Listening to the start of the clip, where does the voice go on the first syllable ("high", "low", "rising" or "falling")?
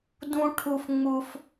high